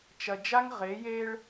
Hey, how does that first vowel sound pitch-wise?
low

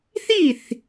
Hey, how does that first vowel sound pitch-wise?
falling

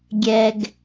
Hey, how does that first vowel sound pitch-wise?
low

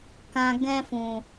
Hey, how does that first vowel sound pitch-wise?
low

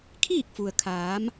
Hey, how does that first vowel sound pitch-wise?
falling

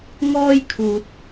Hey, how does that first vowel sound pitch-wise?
high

